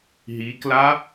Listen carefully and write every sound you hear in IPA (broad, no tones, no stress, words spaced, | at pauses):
ɦikla